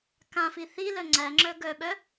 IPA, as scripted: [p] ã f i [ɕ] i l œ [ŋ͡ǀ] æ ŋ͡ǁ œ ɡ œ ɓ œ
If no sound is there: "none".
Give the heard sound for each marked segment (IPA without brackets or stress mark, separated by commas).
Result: k, θ, ŋ͡ǀ